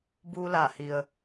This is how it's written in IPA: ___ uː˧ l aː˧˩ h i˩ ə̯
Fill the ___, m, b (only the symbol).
b